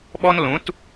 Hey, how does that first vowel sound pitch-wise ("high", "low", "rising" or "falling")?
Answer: high